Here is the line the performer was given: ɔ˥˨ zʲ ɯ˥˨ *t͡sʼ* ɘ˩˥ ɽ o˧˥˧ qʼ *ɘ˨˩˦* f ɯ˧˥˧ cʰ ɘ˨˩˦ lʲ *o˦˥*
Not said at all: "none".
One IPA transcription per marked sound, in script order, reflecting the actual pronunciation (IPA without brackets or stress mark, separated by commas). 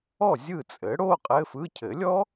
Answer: t͡sʼ, ɘ˧˥˧, ɔ˦˥